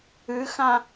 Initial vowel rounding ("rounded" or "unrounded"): unrounded